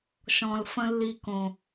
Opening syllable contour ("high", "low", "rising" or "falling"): low